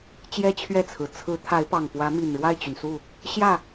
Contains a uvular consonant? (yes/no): no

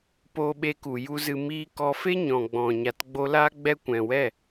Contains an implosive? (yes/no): yes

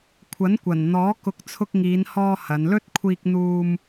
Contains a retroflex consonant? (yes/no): no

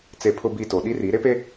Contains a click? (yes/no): no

